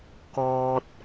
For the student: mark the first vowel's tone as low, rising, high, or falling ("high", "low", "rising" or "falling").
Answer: low